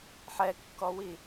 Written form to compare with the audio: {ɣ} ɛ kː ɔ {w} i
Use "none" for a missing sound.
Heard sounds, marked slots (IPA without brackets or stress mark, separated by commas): ħ, w